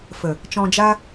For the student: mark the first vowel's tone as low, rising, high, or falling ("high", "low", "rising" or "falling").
low